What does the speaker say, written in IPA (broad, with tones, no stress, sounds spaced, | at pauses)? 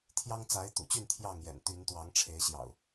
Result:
t̪ʰ j ɑ˦ ŋ t͡s a˨˦ ɪ̯ t̪ ṵ˨˩ t͡ɕ y˥˨ n t̪ʰ j ɑ˥˨ ŋ j ɛ̰˨˩ n t̪ y˨˦ n t̪ w ɑ˨˦ ŋ ʈ͡ʂʰ e˨˦ ɪ̯ ɕ j ɑ̰˨˩ ʊ̯